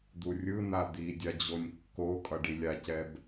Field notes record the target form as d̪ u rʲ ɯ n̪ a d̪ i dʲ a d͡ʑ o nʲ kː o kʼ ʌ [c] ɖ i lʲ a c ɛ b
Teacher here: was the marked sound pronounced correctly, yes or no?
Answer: no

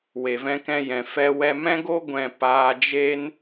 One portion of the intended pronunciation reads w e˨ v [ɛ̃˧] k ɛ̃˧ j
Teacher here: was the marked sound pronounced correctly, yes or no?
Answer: yes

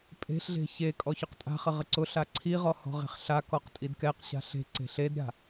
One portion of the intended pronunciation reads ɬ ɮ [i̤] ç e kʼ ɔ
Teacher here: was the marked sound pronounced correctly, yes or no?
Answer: no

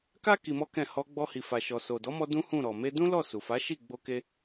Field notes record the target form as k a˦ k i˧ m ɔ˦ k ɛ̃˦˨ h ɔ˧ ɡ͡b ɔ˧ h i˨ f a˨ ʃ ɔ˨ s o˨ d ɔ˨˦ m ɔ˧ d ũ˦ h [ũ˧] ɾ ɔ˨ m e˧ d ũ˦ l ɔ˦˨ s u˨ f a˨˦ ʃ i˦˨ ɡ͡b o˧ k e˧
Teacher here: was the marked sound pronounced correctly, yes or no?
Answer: no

